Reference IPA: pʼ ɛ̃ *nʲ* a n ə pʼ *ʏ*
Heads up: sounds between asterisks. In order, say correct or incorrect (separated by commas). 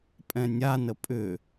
correct, correct